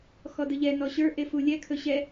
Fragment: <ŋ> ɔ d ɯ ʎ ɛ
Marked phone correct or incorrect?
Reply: incorrect